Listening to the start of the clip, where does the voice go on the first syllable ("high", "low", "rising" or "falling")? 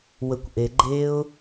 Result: low